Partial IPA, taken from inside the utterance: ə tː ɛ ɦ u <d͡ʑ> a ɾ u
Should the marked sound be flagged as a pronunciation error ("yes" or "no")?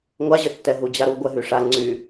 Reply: no